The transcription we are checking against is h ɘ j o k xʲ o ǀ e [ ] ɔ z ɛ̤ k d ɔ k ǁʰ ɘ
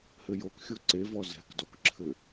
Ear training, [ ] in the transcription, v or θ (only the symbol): v